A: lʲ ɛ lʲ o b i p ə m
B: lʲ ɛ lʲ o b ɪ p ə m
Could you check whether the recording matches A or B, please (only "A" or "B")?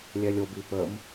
A